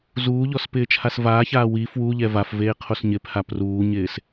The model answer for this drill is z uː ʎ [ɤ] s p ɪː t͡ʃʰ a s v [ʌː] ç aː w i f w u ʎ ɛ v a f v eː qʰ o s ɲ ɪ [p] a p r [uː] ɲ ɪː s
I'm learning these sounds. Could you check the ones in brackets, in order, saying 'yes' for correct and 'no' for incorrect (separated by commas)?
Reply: no, no, no, yes